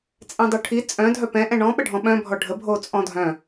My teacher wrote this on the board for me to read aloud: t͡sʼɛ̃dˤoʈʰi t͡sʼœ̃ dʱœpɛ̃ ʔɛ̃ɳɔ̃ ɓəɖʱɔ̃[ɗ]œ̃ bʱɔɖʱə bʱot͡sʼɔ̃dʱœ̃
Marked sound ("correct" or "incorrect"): incorrect